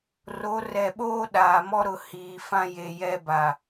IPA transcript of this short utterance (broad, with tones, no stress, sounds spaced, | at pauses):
r o˨˦ r ɛ˨ ɓ oː˦ ɗ aː˨ m ɔ˦ ɾ ʊ˨ h iː˨ f ã˦ j e˨ j ɛ˦ b a˨